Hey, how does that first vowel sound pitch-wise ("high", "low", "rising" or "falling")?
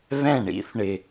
falling